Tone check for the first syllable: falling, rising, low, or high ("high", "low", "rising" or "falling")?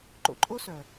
low